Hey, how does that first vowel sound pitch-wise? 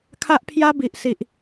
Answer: high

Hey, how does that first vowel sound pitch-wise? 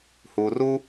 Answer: low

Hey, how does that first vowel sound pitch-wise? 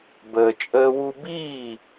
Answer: low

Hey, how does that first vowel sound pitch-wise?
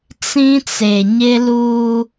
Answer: high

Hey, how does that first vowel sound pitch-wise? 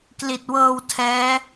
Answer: low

